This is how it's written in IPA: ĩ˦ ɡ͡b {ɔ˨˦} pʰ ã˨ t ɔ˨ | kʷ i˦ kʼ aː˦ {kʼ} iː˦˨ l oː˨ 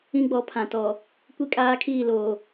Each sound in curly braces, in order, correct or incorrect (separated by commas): correct, incorrect